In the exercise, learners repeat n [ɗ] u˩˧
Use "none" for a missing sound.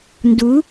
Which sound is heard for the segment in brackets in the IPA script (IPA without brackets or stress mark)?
d